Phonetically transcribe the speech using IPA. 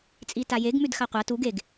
t͡sʼ i t a j e ɡ m ʉ d x a qʷ a t u ɡ e ɡ

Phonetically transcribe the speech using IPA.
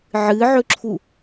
ʕ ɨ ʕ ɵ ǁʰ u

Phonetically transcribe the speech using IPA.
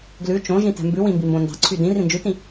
ɡ l ʉ t͡ʃ õ ʒ ĩ t ɛ̤ m b ʉ w ĩ m b i m b õ n d ɑ̤ ǀʰ y d ĩ r ĩ n d͡ʒ ʉ t ĩ

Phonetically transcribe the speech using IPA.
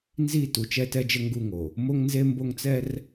n z i˦˨ t u˨ t͡ʃ ɛ˦ t ɛ˦ d͡ʒ ə˦ ŋ ɡ u˦˨ ŋ o˨ | m o˦ ŋ n z e˦ m b o˦ ŋ t͡s ɛ˦ r

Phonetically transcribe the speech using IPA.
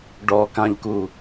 ɖ ɔ k ã ʎ k u

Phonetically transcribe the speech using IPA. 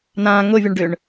n ã ŋ ʊ vʲ ʊ ɳ ɖ ʏ ɳ

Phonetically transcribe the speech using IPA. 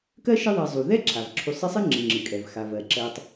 k ɜ˥ ʃ ɨ˦ ðˤ ɜ˨ zˤ u˩ ð ɛ˥ ǁʰ a˩ v ǁʰ u˨ sˤ ɨ˦ sˤ ɨ˥ ŋ͡ǁ ɨ˩ ŋ͡ǁ ɨ˩ kʼ ɛ˩ v x a˩ v ɜ˩ ǁ ɜ˨ tˤ

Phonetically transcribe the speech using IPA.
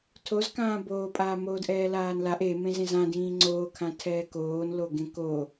tʰ o z k ãː b oː pʼ aː m oː d ʔ ɛː l aː n l a ʔ e m ẽ z ẽ z ã d ĩː ŋ͡ǀ oː kʰ ã tʰ ɛː k oː n l o ɡ ẽ k o

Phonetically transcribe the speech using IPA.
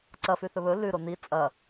ǀ ɐ f ʉ θ ɵ β ɵ l ʉ ɾ o n̪ i t͡sʼ ɐ

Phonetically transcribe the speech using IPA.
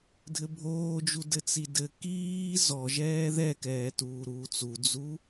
dʱ ɘ bʱ oː d͡ʒ u d ɘ t͡s i d ɘ k iː z ɔ ʒ ɛː ð ɛ k ɛː t uː ɾ uː t͡s u d͡z u

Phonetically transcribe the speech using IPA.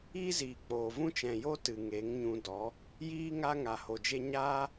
iː˦ z iː˨ k͡p oː˨ v ũ˦ t͡ʃ ɛ̃˨ j o˦ t ɨ˨ ŋ e˨˦ ŋ ɲ ũ˧ d ɔ˨˦ | j iː˦ ŋ a˦ ŋ a˨ h o˨ d͡ʒ e˦ ɲ aː˦

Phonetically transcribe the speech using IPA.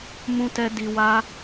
m ũ˧ t ɛ˧ d i˧ w a˦

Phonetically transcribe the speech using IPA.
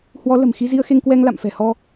h w ɔ˨˦ l ə̤˨˩ m x i˧ z i˧ ə̯ x e˧ ŋ k w ɛ˧ ŋ l a̰˧˨ m f ɛ̤˨˩ h ɔ˧

